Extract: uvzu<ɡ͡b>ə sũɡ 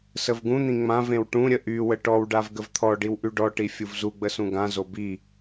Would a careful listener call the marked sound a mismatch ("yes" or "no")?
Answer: no